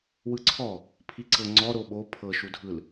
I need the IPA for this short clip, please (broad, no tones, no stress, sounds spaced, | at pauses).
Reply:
w ɯ ǀʰ ɔ | pʰ i ǀ ɤ ŋ͡ǀ ɔ ɾ o ɓ o pʰ ɤ ʃ u dʱ ɯ l